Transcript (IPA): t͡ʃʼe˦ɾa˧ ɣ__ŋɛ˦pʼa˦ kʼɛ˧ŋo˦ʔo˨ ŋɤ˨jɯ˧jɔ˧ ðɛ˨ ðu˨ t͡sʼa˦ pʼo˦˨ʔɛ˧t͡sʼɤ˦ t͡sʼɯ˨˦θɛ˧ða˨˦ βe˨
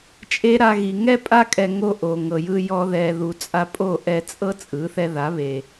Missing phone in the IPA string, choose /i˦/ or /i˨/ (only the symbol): i˨